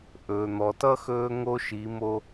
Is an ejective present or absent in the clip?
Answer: absent